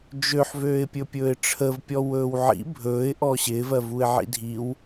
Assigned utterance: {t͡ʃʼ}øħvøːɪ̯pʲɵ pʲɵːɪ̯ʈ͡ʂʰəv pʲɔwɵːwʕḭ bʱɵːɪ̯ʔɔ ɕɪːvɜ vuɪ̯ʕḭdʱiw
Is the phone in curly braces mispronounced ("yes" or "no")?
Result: yes